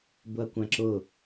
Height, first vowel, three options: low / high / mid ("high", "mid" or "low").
high